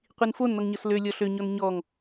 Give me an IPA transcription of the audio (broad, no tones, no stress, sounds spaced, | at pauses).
qʷ i n f o n n̪ ʌ ŋ ɲ ʌ s l ø lʲ ɔ ɬ ø ɲ ɔ n ɲ ɔ ŋ